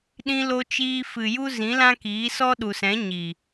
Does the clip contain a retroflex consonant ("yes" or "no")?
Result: no